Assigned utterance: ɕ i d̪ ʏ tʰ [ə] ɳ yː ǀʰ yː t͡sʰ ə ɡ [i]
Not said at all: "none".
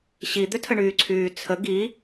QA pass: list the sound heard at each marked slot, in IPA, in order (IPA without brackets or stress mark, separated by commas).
ə, i